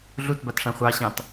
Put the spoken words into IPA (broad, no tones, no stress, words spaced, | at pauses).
ɮutbatʂã χʷɑɕɑ̃t